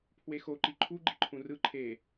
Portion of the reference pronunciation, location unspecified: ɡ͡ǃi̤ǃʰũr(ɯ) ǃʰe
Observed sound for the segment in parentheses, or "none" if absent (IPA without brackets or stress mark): ɯ